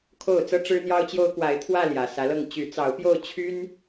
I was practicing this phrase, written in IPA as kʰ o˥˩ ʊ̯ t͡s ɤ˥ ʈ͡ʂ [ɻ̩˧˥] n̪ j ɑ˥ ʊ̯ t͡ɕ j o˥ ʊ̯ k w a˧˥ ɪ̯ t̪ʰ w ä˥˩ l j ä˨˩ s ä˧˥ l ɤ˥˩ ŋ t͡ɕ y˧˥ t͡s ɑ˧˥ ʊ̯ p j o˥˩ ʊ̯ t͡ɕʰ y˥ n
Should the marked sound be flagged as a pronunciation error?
yes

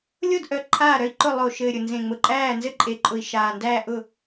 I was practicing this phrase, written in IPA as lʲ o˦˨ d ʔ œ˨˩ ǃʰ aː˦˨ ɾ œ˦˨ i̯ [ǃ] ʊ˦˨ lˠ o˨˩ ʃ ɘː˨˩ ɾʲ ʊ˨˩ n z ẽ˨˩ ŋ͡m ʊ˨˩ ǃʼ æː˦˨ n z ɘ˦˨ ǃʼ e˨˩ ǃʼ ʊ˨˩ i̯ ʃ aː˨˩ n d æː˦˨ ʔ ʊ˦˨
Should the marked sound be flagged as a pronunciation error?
no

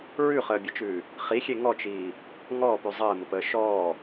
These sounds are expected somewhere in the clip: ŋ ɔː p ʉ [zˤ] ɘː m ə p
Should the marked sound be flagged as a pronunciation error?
no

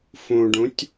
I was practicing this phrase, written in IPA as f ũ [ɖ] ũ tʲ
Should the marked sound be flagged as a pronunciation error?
no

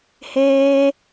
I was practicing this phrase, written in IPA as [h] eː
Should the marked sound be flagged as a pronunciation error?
no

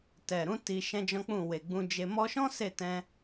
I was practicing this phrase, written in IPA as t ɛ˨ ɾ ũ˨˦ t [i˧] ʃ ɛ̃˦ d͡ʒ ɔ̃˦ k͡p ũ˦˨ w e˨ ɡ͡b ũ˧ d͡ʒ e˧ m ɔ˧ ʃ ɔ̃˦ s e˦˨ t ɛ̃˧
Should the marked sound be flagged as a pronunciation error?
no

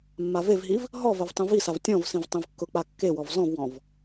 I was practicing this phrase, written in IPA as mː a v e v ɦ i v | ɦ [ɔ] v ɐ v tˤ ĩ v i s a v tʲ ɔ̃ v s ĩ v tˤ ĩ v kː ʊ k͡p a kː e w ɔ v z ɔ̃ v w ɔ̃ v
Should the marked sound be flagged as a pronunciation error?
no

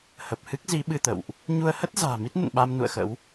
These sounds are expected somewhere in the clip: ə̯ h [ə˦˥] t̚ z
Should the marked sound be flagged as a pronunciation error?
no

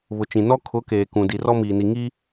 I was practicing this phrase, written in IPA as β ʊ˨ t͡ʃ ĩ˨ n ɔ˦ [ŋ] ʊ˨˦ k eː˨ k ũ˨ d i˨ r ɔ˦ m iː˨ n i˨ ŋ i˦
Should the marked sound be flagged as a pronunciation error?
yes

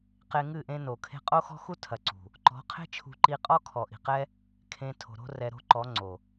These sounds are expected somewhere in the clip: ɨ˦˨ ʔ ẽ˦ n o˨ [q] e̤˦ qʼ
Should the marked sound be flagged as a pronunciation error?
yes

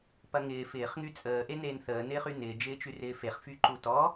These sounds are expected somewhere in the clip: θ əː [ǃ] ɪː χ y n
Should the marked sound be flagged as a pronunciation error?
yes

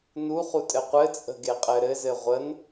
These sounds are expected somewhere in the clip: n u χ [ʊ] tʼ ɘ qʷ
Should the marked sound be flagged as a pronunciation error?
yes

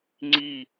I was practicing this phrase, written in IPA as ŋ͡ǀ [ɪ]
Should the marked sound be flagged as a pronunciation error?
yes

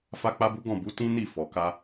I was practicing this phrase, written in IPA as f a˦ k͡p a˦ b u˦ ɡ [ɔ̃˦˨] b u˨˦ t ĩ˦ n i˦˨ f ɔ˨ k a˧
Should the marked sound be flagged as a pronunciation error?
no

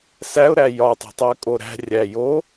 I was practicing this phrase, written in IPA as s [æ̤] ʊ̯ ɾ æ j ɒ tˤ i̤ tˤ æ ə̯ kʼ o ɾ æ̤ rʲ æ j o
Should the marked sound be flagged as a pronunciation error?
yes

